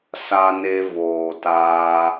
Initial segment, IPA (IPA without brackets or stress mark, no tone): s